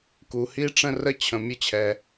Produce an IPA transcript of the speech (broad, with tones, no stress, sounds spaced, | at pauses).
k u˩ h i˦ ʈ͡ʂ ə̃˦ r ə˦ t͡ɕʰ ə̃˨ mʲ ə˦ t͡ɕʰ ɛ˨